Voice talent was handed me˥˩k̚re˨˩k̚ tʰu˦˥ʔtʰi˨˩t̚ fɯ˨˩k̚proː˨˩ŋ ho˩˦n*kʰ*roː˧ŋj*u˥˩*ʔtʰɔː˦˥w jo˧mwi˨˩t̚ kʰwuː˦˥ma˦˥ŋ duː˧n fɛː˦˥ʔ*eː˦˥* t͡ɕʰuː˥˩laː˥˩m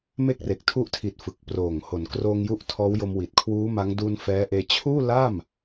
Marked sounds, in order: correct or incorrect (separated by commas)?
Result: incorrect, incorrect, incorrect